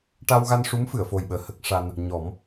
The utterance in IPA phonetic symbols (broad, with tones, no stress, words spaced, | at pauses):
ʈa˧wɣa˧nʂu˧˥m fɨ˨˩˨ə̯fo˨˩jɓəː˨˩ hə˦˥k̚ʂa˧n | ɲɔ˨˩˦m